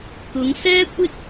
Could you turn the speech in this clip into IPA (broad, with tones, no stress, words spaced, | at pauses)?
kʊ˨˧ŋsɛː˥ kʷɪ˥k̚